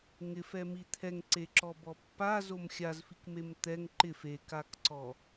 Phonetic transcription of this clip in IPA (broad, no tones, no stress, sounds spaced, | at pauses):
ŋ ɪ f ɛ m i t̪ʰ ɛ ŋ ǀ e ǁ ɔ b ɔ pː a z o m xʲ a z f i k m e m t̪ ɛ ŋ ǃ ɪ f e k a k ǀ ɔ